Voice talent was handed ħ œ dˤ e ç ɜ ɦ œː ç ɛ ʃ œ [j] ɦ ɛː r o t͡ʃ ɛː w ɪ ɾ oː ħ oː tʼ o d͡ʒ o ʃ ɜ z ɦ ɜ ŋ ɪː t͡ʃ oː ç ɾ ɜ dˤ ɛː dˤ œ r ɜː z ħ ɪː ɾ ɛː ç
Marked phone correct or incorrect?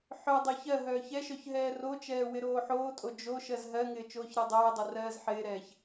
incorrect